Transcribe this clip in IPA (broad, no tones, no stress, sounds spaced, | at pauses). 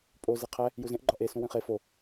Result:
pʼ o z e qʰ æ | j u z ẽ ʔ ɡ͡ǃ ɒ ʔ e s ũ w ĩ χ e f o